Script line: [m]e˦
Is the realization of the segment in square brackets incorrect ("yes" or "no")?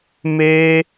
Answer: no